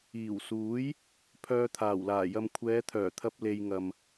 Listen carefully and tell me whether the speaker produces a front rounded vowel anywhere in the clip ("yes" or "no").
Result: yes